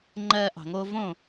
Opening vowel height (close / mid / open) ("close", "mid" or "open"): mid